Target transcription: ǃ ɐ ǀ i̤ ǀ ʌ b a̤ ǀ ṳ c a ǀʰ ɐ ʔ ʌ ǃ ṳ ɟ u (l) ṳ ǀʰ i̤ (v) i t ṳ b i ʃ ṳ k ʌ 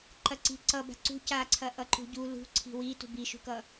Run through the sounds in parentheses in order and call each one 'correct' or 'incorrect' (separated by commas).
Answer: correct, incorrect